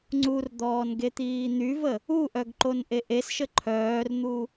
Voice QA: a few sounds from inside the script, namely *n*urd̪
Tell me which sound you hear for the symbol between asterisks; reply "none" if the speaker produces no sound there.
ŋ͡ǀ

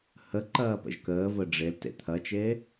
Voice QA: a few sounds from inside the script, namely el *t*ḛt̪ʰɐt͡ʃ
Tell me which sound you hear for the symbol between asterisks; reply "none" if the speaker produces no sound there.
t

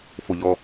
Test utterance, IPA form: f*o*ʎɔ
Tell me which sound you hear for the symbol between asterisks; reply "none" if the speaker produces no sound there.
o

